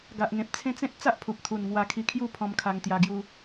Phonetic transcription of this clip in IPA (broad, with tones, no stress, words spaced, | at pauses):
ɡa˨ʔŋẽ˨p̚t͡sʰẽ˦t͡sẽ˦t̚ t͡sa˦ʔpʰu˨p̚ t̪ʰu˨˩nŋwa˧kʰi˧kʰju˥˧ pʰɔ̃˧mkʰa˧ŋt̪ja˧ɡju˧